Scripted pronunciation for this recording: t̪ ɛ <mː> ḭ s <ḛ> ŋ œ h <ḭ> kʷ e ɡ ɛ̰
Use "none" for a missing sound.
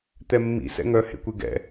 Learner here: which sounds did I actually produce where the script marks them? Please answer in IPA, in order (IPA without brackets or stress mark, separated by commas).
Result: mː, ɛ̰, ḛ